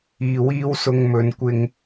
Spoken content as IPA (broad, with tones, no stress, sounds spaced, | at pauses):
iː˨ w iː˥ w s ʊ˧ ŋ m ɵ˨˧ n kʷ ɪ˧ ŋ